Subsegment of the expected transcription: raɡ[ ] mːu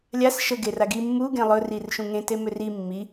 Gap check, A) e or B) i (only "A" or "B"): B